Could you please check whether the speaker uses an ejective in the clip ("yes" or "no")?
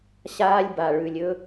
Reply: no